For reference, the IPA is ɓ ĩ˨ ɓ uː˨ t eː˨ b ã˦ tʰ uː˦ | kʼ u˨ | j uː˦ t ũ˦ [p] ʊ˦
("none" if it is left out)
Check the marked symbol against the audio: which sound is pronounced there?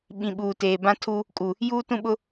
ɓ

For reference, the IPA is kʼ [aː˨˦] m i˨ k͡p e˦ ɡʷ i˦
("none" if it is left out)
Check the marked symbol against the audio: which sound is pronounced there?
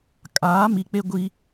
aː˨˦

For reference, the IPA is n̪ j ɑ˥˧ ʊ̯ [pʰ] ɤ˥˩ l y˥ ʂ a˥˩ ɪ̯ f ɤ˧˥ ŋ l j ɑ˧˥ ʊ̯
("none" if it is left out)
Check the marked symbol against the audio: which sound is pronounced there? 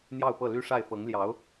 p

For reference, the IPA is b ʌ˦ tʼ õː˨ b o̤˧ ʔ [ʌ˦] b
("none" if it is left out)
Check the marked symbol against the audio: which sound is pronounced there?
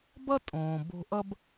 ʌ˦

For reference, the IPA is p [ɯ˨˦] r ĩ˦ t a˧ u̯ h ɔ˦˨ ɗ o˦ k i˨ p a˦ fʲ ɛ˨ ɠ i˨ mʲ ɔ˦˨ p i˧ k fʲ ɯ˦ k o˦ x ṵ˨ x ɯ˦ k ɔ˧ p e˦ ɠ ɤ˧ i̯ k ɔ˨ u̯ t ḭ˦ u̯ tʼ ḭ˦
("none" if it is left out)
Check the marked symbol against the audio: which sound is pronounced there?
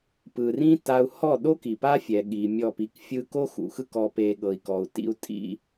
ɯ˨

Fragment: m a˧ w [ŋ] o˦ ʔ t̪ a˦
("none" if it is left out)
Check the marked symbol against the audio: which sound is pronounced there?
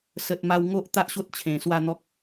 ŋ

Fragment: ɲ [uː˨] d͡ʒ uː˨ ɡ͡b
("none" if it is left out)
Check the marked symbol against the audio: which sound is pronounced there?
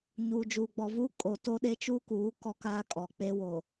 uː˨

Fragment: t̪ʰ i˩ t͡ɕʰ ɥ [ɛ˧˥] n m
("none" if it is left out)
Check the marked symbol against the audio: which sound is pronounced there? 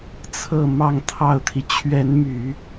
ɛ˧˥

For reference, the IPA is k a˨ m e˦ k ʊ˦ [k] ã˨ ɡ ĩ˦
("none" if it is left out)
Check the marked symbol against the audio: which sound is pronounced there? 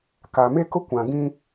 kʷ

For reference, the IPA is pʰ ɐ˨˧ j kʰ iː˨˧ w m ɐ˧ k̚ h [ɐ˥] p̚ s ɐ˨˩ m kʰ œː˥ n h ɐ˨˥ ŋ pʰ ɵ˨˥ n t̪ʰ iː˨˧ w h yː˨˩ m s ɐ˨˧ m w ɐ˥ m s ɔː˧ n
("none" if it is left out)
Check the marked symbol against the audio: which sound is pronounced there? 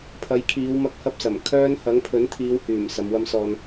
ɐ˥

